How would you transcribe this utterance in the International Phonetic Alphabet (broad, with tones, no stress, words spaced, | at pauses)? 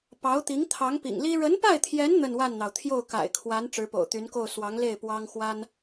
pɑ˧˥ʊ̯t̪i˧˥ŋ t̪ʰɑ˧˥ŋpḭ˨˩ŋli˥ ɻə˧˥npa˥˩ɪ̯t̪ʰjɛ˧˥n n̪ə˥˧nwa˥˩nn̪ɑ˩ʊ̯ t̪ʰjo˥˩ʊ̯ka̰˨˩ɪ̯kʰwa˧˥n ʈ͡ʂɻ̩˧˥po̰˨˩ʊ̯t̪y˧˥nko˥˩ʊ̯ swɑ˧˥ŋle˥˩ɪ̯ pwɑ˥ŋxwa˥n